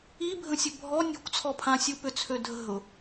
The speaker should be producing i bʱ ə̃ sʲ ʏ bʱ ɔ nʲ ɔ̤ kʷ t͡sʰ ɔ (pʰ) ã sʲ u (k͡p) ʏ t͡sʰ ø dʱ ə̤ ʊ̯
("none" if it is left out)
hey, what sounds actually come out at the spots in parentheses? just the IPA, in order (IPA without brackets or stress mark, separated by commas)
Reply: pʰ, p